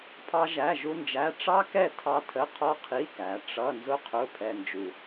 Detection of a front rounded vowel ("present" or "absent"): absent